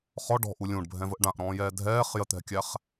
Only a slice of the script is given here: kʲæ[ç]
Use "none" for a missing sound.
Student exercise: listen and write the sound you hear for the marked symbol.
χ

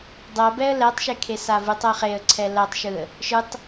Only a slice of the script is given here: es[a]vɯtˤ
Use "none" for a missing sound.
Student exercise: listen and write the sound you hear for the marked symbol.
a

